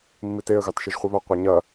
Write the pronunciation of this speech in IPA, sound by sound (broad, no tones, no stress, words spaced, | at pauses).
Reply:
mːiteə̯ ɣɑtʃɯʒχʷiβɐ qʷeɲɐ